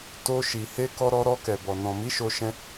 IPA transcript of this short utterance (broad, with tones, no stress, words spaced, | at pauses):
to˧ʃi˨ he˧kɔ˧ɾɔ˧ ɾɔ˧kɛ˨bɔ˨ nɔ̃˨mi˨˦ʃo˧ʃɛ̃˧